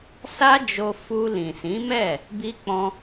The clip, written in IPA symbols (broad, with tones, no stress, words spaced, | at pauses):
sa˦d͡ʒo˧ fu˧ lĩ˨sĩ˨˦mɛ˦˨ | bi˧k͡pɔ̃˧